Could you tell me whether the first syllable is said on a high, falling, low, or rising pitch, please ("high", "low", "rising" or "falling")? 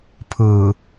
low